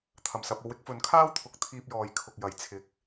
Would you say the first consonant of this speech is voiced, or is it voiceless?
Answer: voiceless